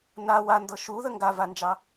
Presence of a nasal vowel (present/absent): absent